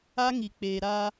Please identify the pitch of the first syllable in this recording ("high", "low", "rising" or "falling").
high